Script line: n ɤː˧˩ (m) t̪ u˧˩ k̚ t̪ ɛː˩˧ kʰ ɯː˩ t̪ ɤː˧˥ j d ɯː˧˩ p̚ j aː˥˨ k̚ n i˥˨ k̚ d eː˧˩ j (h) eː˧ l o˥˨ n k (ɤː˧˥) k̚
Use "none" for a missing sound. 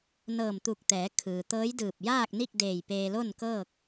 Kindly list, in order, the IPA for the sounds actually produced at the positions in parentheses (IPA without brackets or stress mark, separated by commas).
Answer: m, p, ɤː˥˨